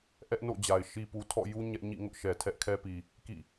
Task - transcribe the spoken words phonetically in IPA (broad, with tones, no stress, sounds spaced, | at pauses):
ʔ ɛ˦ ʔ n o̰˦˨ d͡ʑ a˨ ɪ̯ ʃ i˦ p u˦ tʰ ɔ̰˦˨ j u˦ ɲ ɛ˦ ʔ ɲ ḭ˦˨ ŋ ʊ˦ ʔ ʃ ɛ˨ tʰ ɛ˦ ʔ kʰ ɛ˦ p i˨ | k ḭ˦˨